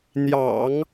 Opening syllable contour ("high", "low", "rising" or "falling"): low